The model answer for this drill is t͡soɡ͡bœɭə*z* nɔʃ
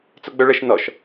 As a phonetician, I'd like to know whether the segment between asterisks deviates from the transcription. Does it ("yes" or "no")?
yes